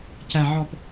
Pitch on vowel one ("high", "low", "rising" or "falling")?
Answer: low